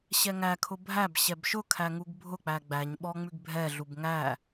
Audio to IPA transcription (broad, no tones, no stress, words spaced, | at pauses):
ɕɛŋækʰʊ bʱæb ɕɛbʃʊkʰæ ŋuɡbʱʊk͡pæ ɡ͡bæɲɓɔ ŋ͡mʉɡbʱɛɮub ŋæ